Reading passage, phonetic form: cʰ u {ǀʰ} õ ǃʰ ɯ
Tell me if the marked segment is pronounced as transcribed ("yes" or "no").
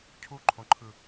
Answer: no